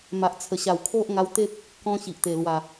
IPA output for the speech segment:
m a˨ ʔ t͡sʰ ə˨˩ ɕ a˨˩ w kʰ o˦ ʔ ŋ a˧ w t̪ e˦ p̚ | k ɔ̃˦ ɕ i˨ ʔ t̪ e˨˩ l w a˨˩

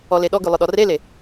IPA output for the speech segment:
ɔ l e ɗ ɔ ɡ ʉ lˠ ʊ ɗ ɔ r e l e

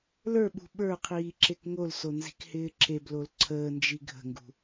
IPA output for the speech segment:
l ə˞ ɓ ṳ ɓ ə˞ qʰ iː ǁ e k ŋ o l s o n z i̤ k h ɪː ǁ e b l o l ǀʰ əː n d͡ʒ i ɡʱ ə̤ ŋ ɡ ṳ

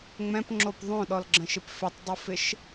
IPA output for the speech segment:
ŋ͡m ɛ̃ p ŋ͡ǁ o p ðˤ õ ɗ ɔ l ɡ͡ǁ ə̃ ʃ ɪ p f ɪ tˤ dˤ o f ɪ ʃ

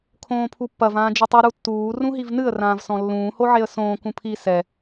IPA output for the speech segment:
kʰ õː pʰ u pː ɐ v ãː d͡ʒ ɘ tˤ u ɾ u tː uː r ũ ɦ i v n ɨ ə̯ r ãː v s ɔ̃ lː ũː h o ʕ e ə̯ s õː k ũ pʰ i s ɛ

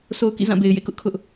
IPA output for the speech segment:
sʰ o˦ ʊ̯ k ḭ˦˨ z ã˦˨ b e˨ ɪ̯ j ḛ˦˨ k ʊ˦ ʔ kʰ ʊ˦ ʔ

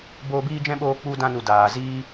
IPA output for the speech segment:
b oː˧ b iː˦ d͡ʒ ɛ̃˦ ɓ oː˧ k͡p u˧ d ã˧ n u˨ d aː˨ z iː˦

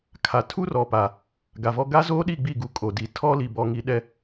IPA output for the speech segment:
kʰ a˨ tʰ u˦ r ɔ˨ p a˨ | ɡ a˨ v ɔ˦ ɡ a˦ z oː˦ ɗ i˦˨ ɡ͡b i˦˨ ɡ u˨ kʼ o˨ d i˨ tʰ ɔ˦ l i˨ b ɔ˨ ŋ i˨˦ ɗ ɛ˨

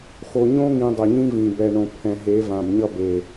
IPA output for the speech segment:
x o˨ ɲ õ˦ ŋ ĩ˨ dˤ ʌ˨ ɲ ĩ˦ v ĩ˨ b ɛ˨ ɳ õ˨ pʰ ɛ̃˨ ɦ e˨˦ v ã˨ b ɲ ʌ˦ b e˨

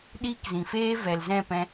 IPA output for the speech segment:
ɗ iː˦ k z ĩ˨ f eː˦ v ɛ˨ l z ɛ̃˦˨ p ɛ̃˧

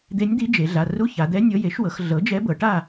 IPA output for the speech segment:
d̪ e˧˥ nʲ d̪ i˧˥ d͡ʒ e˩˧ ɮ a˩˧˩ r u˧˥˧ ç a˩˧ d̪ ɛ˧˥ nʲ ɤ˧˥ j e˩˥ ʃ w ɤ˩˧ x ɮ ɤ˩˥ d͡ʒ ɛ˧˥ b ɤ˩˧ ʈ a˥˨

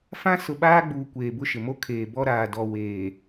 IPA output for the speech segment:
f ã˦ s ʊ˨ ɓ aː˦ ɡ͡b uː˨ kʷ eː˨ b ʊ˦ ʃ ɪ˨ m o˦ kʰ eː˨ b ɔ˦ ɾ aː˨ d ɔ˨ w eː˨

